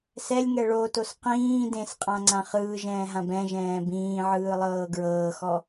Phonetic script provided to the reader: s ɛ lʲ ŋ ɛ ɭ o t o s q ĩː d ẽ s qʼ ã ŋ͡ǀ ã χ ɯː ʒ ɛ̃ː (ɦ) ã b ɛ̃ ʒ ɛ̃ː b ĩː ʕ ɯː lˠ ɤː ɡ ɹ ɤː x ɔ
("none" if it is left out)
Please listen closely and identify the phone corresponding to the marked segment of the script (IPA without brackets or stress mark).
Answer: ɦ